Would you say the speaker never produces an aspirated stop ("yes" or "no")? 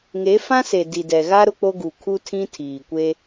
no